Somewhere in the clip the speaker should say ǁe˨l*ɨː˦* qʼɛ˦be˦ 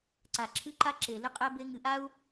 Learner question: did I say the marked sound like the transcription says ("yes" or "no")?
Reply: no